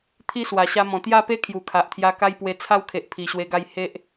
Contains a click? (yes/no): no